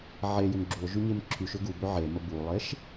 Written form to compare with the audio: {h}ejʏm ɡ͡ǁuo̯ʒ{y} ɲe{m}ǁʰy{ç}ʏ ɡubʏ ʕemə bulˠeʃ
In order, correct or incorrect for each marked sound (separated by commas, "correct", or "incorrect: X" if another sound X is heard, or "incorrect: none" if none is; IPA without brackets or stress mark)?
incorrect: ʕ, correct, correct, incorrect: ʃ